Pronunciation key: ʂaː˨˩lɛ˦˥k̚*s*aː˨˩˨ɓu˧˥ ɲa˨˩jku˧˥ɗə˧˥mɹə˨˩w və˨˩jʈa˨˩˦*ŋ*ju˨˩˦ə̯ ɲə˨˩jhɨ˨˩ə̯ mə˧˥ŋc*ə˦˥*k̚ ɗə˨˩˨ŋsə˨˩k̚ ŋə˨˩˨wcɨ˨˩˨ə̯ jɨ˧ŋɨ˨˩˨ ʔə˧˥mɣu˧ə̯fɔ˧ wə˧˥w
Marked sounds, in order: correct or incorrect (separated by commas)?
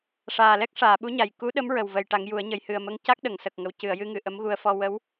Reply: incorrect, correct, incorrect